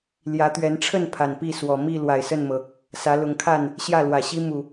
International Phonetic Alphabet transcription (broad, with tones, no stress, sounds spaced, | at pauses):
l j ä˨˦ t̪ ɥ ɛ˨˦ n ʈ͡ʂʰ ə˥˨ n pʰ a˨˩ n p i˥˨ s w ɔ˨˩ m i˥˨ l w a˨˩ ɪ̯ s ə˥˨ n m ɤ˩ | s ä˨˦ l ʊ˨˦ ŋ kʰ a˥˨ n | ɕ j ä˥˨ l w ä˨˩ ɕ i˦ m u˨˩